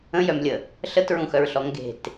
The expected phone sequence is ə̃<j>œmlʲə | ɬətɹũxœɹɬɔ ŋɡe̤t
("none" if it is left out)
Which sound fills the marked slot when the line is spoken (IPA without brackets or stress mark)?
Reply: j